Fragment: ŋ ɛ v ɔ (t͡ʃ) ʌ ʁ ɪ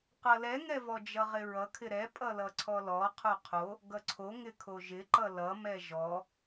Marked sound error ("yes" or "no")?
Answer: yes